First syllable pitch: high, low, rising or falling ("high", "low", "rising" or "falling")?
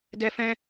high